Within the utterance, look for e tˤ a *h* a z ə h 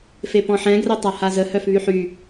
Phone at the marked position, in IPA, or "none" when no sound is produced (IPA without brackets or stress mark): h